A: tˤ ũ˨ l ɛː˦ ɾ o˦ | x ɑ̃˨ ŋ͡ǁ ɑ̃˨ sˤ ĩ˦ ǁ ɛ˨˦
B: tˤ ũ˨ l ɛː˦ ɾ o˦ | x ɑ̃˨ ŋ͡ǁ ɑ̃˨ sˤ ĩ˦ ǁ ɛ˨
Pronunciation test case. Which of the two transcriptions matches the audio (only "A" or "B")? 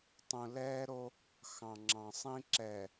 B